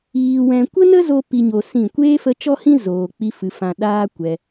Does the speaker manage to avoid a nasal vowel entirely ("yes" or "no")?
no